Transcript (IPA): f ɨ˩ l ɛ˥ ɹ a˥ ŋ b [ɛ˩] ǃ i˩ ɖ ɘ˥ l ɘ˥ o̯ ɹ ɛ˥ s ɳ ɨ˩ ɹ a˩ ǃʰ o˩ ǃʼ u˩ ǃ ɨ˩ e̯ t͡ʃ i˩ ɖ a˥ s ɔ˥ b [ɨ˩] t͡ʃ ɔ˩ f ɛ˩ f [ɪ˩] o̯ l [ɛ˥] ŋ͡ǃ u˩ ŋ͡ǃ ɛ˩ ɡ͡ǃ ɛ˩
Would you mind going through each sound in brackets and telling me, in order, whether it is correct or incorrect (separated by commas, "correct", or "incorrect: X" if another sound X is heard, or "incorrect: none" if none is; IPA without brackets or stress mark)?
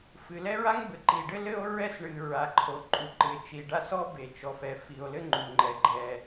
incorrect: ɘ˩, incorrect: e˩, incorrect: i˩, incorrect: ɘ˥